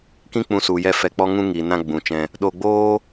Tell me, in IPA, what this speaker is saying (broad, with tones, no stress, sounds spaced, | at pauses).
k ĩ˦ k͡p ũ˧ s u˨ j ɛ˧ f ɛ˧ k͡p ɔ˦ ŋ ũ˦ ŋ i˨ n ã˧ ɡ͡b ũ˨ t͡ʃ ɛ̃˧ | ɗ o˧ ɡ͡b oː˦